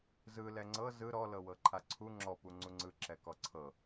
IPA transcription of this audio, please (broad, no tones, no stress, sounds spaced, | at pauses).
z ɯ l ɛ ŋ͡ǀ ɤ z ɯ ɾ ɔ l ɤ w ɤ ǃʰ a ǀʰ u ŋ͡ǁ ɔ p u ŋ͡ǀ u ŋ͡ǀ ɯ ǁ ɛ k ɔ ǀʰ ɤ